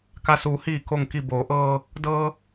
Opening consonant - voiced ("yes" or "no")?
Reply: no